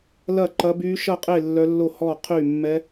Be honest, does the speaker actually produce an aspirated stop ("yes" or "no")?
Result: yes